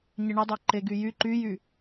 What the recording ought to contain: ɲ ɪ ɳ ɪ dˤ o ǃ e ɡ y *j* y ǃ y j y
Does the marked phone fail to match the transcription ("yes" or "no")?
no